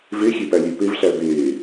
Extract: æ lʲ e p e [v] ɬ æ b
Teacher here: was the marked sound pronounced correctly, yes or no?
yes